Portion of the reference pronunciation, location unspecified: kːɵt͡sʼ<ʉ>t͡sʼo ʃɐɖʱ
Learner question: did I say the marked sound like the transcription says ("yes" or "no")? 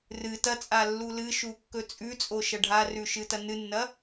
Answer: yes